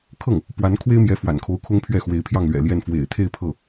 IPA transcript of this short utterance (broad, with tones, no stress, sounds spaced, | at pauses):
kʰ ɤ˥˩ ŋ | p w a˧˥ n kʰ w e˥ ɪ̯ m j ɛ˧˥ f w a̰˨˩ n kʰ o˧˥ ʊ̯ kʰ ʊ˥ ŋ pʰ ɥ ɛ˥˩ x w e˧˥ ɪ̯ pʰ j ɑ˥˩ ŋ l ɥ ɛ̰˨˩ l j ɛ˥˩ n f w ḛ˨˩ ɪ̯ t̪ʰ e˥˧ ɪ̯ pʰ ɤ˥˩